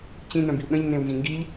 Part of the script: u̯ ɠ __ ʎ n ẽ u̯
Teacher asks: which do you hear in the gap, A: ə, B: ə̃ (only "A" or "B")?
B